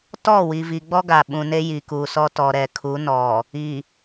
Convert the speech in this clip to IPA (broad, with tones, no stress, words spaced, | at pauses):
tɔ˦˨wi˨vi˨ɡ͡bɔ˦ ɡa˨ɓũ˨ ne˦ji˨ kuː˨sɔ˦ tɔ˨ɾɛ˨kʰu˨˦nɔ˨ | i˨